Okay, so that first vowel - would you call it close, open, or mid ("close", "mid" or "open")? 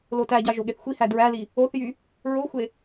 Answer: mid